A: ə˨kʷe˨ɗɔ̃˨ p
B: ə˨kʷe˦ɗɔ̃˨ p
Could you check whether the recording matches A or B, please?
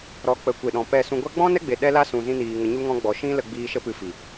A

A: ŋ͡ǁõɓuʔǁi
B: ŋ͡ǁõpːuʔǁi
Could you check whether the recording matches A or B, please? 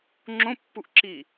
B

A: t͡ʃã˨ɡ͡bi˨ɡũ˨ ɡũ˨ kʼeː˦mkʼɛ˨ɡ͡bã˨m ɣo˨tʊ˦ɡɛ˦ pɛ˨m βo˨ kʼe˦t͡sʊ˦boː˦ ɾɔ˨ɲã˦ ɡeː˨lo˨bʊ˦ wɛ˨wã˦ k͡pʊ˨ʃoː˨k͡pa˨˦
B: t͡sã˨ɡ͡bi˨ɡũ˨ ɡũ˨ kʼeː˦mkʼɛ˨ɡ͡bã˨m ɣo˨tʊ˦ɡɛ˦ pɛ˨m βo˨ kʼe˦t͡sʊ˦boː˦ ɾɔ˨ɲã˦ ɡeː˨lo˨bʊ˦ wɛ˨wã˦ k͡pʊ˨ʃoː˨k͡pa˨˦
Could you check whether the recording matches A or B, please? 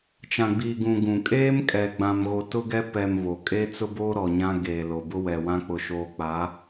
A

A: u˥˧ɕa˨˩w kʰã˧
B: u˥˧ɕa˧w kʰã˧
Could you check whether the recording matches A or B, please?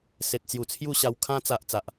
B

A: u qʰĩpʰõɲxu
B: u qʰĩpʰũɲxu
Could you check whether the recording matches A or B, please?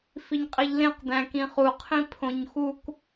A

